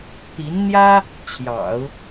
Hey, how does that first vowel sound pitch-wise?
rising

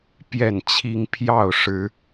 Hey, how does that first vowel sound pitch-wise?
falling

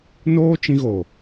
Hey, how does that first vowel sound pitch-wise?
high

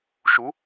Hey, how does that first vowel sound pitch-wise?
rising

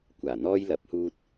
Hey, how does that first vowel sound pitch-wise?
low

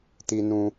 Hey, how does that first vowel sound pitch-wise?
high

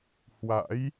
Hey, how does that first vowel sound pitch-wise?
rising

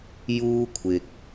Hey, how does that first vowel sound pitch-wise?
high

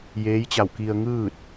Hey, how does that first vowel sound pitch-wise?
rising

